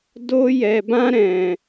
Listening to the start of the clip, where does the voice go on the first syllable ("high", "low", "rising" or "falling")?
high